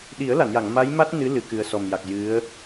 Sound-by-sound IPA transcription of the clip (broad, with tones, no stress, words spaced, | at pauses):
ɗi˨˩˦ə̯la˨˩˨nja˨˩˨ŋ ma˧˥jma˦˥t̚ nɨ˧˥lɨ˨˩ kɨ˨˩ə̯sɔ˨˩m ja˨˩k̚ jɨ˧˥ə̯